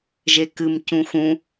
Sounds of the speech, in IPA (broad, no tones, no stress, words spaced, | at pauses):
ʒekɨm cũxũ